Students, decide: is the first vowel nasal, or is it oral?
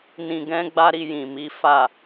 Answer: nasal